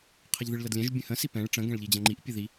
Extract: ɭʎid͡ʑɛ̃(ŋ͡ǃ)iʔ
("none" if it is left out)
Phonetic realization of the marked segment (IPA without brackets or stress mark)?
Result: ŋ͡ǃ